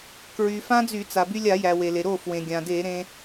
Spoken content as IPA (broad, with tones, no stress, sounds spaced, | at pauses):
k ɹ y˩ f ã˦˥ d͡z y˧˩˧ t͡s a˩ b y˧ lʲ a˧˩˧ j æ˩ w e˩ l e˩ ɾ o˥˩ f w ẽ˩ ɡʲ ã˩ d e˧˩˧ ɾ ẽ˧